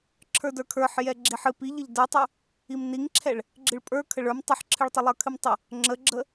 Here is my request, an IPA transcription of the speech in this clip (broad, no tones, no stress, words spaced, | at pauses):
ǁʰə˞də˞kʰə˞ħ jɛɡ͡ǁiħɨ piʎəʎ də˞tˤə˞ | imniŋǁʰɛɭ | ɡ͡ǁɨɭpʼə˞ kʰəɭə˞m tˤɨħǁʰɨɭtˤə lˠə˞kʰɨmtˤə | ŋ͡ǁəɡ͡ǁə